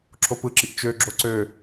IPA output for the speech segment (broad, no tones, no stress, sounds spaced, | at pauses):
ǁʰ o p ɯ ǁ i ʔ t͡ʃ ø ɡ͡ǁ o ǀ ø